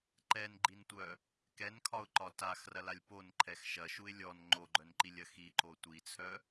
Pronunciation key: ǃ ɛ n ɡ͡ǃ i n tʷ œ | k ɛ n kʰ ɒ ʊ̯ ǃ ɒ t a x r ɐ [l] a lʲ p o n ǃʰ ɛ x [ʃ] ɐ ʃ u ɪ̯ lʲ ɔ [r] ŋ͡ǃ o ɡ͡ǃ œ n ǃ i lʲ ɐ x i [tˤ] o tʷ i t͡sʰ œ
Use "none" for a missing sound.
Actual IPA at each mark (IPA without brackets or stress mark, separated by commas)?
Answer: l, ʃ, n, ǃ